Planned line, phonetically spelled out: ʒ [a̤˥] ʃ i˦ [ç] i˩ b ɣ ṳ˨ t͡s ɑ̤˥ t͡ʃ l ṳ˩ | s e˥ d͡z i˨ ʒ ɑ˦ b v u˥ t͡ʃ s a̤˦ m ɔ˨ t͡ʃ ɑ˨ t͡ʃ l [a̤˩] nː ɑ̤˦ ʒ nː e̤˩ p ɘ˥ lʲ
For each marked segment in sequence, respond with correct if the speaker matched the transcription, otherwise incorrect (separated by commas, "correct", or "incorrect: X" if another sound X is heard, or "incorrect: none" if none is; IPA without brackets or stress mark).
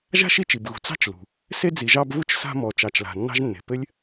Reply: correct, incorrect: t͡ʃ, correct